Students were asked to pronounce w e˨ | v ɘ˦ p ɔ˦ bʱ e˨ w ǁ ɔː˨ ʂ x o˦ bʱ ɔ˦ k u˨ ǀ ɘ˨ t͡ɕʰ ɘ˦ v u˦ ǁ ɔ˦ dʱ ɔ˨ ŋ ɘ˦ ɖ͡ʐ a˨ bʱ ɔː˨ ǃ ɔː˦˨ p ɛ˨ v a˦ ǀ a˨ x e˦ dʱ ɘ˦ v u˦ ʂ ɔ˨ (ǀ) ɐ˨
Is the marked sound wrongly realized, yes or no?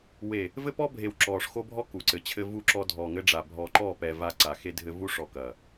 yes